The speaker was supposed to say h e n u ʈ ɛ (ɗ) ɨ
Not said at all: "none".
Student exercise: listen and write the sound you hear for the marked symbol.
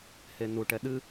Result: ɗ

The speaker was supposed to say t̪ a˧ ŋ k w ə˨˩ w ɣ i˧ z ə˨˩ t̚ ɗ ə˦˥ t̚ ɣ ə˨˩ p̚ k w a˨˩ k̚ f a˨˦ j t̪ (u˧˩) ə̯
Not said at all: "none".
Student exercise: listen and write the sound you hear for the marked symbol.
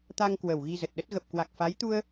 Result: u˧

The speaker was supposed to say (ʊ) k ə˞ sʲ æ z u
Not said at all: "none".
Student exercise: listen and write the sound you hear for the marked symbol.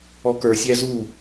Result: ɔ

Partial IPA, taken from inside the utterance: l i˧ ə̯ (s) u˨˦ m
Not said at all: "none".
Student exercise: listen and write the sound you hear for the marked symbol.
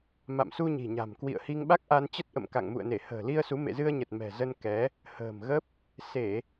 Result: s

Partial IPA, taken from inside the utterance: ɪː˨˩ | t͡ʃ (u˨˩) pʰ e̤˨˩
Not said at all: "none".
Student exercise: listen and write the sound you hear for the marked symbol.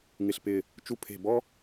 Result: u˧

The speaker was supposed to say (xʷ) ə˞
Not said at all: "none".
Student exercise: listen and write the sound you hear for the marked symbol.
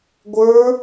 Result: ɡʷ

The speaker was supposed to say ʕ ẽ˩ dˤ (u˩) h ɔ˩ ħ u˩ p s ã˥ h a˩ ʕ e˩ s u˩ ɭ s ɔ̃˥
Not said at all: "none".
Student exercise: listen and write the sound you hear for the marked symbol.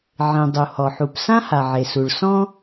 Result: u˩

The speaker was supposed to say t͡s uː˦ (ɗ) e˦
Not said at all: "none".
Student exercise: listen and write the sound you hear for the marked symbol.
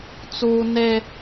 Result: n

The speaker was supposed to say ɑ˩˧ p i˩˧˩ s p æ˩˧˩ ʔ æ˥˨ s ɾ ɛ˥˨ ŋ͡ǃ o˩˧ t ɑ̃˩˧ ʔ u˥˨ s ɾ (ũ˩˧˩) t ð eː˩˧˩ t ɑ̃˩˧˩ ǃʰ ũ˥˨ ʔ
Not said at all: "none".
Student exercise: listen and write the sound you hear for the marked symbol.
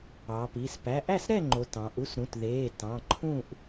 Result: ũ˩˧˩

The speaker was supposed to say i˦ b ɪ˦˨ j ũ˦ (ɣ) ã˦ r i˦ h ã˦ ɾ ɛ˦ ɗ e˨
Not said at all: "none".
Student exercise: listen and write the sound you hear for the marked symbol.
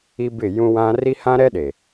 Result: w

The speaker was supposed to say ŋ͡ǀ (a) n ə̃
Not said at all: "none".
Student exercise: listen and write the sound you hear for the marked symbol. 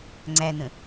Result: æ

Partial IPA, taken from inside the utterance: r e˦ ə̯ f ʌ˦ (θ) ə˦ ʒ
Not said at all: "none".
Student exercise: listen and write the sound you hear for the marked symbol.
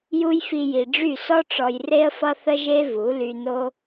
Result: θ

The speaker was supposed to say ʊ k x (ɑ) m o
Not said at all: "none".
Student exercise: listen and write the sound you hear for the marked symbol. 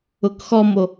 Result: ɔ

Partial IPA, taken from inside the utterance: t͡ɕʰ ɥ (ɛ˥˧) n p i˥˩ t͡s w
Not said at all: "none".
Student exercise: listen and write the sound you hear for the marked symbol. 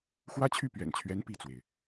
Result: ɛ˧˥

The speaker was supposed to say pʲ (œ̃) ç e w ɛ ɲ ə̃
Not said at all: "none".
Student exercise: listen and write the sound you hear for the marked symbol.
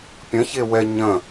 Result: ə̃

